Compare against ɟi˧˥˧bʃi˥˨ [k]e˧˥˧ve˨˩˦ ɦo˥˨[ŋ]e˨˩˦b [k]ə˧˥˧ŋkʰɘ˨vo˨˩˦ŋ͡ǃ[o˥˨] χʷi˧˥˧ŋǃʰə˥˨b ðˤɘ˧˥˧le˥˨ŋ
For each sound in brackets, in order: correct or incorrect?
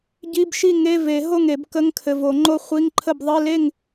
incorrect, correct, correct, correct

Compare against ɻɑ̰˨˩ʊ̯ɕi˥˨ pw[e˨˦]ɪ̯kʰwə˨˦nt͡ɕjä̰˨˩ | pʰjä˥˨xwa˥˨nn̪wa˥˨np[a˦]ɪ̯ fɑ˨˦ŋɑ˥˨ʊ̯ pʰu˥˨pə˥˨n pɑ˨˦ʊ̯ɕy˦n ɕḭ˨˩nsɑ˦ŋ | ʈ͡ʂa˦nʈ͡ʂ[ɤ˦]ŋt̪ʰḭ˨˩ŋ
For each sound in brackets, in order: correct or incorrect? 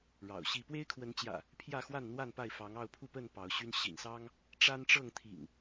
incorrect, incorrect, incorrect

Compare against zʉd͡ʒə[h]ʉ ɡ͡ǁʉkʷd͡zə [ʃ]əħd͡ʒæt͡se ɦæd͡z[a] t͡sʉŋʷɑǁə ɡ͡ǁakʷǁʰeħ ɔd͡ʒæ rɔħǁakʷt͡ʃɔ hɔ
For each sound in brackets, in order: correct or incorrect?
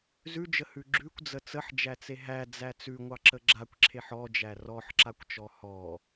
correct, incorrect, incorrect

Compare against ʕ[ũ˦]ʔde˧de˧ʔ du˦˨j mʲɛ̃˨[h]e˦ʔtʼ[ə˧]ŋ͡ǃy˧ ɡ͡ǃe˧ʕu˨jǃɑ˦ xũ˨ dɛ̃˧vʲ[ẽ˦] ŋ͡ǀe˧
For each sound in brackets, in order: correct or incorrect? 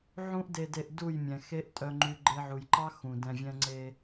correct, incorrect, incorrect, incorrect

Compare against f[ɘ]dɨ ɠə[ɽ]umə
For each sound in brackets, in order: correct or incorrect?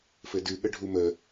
correct, incorrect

